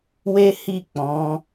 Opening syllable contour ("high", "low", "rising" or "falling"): high